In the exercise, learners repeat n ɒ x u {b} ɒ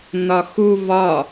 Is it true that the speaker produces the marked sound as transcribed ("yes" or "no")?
no